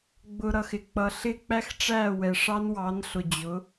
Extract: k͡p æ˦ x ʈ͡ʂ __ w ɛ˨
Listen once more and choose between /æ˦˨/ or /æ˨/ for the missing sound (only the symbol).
æ˦˨